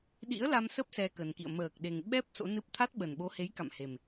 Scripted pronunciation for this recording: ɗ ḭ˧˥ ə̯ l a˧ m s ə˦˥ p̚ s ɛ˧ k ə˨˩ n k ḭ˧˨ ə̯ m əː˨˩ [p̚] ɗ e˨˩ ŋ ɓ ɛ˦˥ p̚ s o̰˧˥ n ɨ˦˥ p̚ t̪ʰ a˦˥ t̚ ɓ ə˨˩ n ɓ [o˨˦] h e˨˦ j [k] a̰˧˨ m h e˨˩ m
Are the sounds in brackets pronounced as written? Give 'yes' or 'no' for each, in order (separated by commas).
no, yes, yes